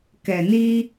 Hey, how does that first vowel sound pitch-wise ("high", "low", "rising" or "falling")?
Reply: low